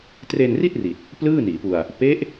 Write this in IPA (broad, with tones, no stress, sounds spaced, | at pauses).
t r e˧ n r i˥˩ t̚ r i˨˩ t̚ | p l ɯː˥˩ n iː˩˦ p u˧ a̯ | p e˦˥ ʔ